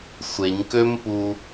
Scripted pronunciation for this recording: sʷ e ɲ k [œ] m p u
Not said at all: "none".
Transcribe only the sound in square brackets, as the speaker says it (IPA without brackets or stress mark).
ø